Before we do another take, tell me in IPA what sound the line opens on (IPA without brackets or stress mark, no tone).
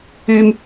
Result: yː